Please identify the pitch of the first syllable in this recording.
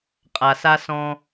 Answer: low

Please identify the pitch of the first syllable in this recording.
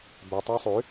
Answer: low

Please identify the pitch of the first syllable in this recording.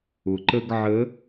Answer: low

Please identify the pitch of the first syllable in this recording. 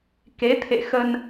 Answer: rising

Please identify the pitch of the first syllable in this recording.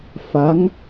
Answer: rising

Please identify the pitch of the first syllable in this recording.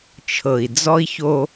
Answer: low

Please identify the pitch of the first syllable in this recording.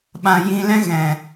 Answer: low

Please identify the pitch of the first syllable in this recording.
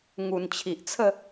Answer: low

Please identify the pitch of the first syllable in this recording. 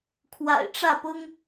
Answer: low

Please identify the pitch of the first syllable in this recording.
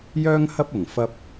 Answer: high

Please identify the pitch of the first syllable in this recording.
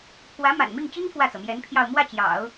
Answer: rising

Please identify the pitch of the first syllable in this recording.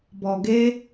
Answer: low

